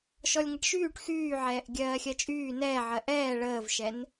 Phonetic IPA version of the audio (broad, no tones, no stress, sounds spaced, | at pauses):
ʃ ɔ lʲ ŋ ə ʈ ʃ yː ʈ x yː ʕ ɛː ʔ ɡʲ ɜː xʲ ɜ t͡ʃʼ yː n ɛː ʕ ɜ ʔ ɛː ɭ əː v ʃ ɛ n